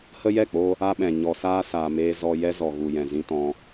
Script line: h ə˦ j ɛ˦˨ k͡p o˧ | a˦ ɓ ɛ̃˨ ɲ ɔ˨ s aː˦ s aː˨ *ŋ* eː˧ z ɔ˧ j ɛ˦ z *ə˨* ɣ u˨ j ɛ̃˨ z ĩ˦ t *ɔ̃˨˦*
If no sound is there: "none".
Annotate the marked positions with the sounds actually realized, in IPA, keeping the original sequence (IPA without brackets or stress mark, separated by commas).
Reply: m, ɔ˨, ɔ̃˧